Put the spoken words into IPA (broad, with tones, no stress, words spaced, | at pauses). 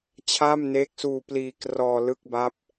t͡ɕʰaː˥˩mneː˦˥k̚suː˧ pliː˧krɔː˧ lɯ˥˩k̚ba˦˥p̚